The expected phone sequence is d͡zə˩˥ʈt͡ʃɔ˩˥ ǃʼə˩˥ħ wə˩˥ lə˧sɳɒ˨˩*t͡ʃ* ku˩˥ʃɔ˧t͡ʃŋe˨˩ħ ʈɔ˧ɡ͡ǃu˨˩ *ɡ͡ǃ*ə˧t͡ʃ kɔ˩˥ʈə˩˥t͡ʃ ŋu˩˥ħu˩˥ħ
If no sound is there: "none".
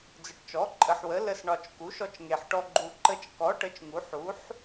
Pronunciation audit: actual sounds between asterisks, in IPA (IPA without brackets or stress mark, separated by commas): t͡ʃ, ǃ